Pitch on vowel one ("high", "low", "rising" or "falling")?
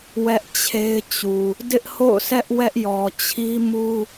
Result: high